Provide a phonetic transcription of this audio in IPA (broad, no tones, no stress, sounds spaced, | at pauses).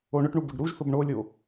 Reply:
o ɳ ʊ ʈ ɳ u b ʊ ɖ ɾ u ʒ θ ʊ b ɳ o lʲ o